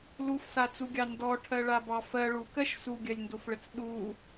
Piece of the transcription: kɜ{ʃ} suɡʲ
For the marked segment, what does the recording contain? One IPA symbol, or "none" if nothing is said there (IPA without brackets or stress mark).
ʃ